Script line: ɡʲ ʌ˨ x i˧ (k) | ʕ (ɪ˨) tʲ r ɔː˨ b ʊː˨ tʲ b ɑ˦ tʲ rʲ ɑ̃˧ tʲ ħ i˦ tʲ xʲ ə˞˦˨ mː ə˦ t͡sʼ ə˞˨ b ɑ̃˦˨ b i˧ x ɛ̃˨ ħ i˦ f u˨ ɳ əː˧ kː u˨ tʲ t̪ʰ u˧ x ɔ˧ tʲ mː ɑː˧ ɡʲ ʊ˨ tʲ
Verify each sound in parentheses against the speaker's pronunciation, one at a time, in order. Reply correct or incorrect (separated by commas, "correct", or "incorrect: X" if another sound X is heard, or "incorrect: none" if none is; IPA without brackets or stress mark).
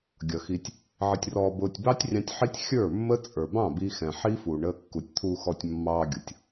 incorrect: tʲ, correct